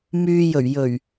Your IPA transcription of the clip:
m yː˨ j ɵ˨˩ ɥ j ɵ˨˩ ɥ

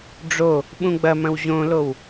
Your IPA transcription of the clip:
ɖ͡ʐ o | ɓ ũ ɡ͡b ɐ m ɐ̃ w ʑ õ l o w

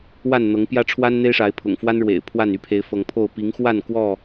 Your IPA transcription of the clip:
w a˥˨ n n̪ ɤ˨˦ ŋ p j ä˦ ʈ͡ʂʰ w a˦ n n̪ e˦ ɪ̯ ʂ a˨˦ ɪ̯ pʰ ʊ̰˨˩ ŋ f w a˦ n ɻ w ḛ˨˩ ɪ̯ pʰ w a˥˨ n y˥˨ pʰ e˨˦ ɪ̯ f ɤ˨˦ ŋ pʰ o˥˨ ʊ̯ p i˨˦ ŋ x w a˥˨ n k w ɔ˥˨

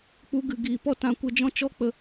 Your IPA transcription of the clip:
k͡p u˧ ɡ ɨ˨ ɡ iː˨ p ɔ˦ t ã˨ kʷ ə˨˦ d͡ʒ ɔ̃˧ t͡ʃ ɔ˦ k͡p ə˨

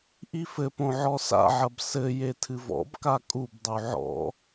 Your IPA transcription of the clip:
ʔ i f ɘ p õ ʕ ɔ s a̰ ʕ ɐ b s ɘ j e tʰ ɨ v ɔ̰ b k a kʼ u b dˤ u ʕ ɔ̰

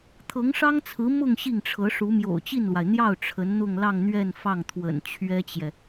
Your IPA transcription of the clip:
t̪ʰ ɤ˧˥ ŋ ʂ ɑ˥ ŋ t͡sʰ ɹ̩˧˥ m ʊ˥˧ ŋ ɕ i˥˩ ŋ ʈ͡ʂʰ ɤ˧˥ ʂ u˧˥ m j o̰˨˩ ʊ̯ t͡ɕ i˥˩ n l w a˩ ɪ̯ n̪ j ɑ˥˩ ʊ̯ ʈ͡ʂʰ ə˧˥ n n̪ ʊ˥˧ ŋ l ɑ˥˧ ŋ n̪ ɥ ɛ˥˧ n f ɑ˥˩ ŋ t̪ʰ w ə̰˨˩ n t͡ɕʰ ɥ ɛ˥ t͡ɕ j ɛ˨

